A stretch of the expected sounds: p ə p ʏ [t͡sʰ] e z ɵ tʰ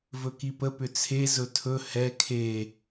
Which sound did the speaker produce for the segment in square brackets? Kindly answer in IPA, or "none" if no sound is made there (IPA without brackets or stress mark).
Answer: t͡sʰ